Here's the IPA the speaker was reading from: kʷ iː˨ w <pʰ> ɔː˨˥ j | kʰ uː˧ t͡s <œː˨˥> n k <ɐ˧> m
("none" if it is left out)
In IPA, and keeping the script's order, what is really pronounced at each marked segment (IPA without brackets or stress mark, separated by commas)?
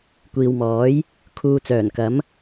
m, œː˨˩, ɐ˨˥